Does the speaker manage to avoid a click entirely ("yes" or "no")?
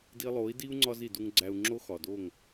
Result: no